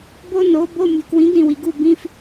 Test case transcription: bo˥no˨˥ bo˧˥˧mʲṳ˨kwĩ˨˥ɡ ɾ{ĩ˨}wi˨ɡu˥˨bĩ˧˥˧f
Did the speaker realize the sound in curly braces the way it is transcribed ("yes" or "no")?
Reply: yes